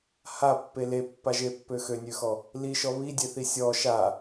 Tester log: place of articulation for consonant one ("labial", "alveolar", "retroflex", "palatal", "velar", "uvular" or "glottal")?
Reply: glottal